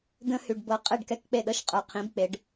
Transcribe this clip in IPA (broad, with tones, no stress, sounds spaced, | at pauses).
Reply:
d̪ ə̃˦ h y˨ ɖ b ɤ˨ qʼ e˦˨ ɖ k ɛ˦ k k͡p e˦˨ ɗ ɤ˦ ʃ qʼ ə˞˨ qʰ ĩ˨˦ b k͡p e˨˦ ɖ